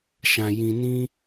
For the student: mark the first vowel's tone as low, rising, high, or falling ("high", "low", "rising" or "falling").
low